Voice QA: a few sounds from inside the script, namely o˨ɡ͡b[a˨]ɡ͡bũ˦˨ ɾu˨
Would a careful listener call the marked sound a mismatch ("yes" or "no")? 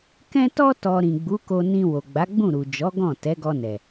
yes